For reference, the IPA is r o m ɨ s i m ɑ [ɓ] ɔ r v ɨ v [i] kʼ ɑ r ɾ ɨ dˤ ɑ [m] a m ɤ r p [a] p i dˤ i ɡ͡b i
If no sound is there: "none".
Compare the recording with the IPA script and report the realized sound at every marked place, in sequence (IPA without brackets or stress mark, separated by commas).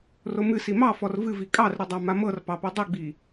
f, i, m, ɑ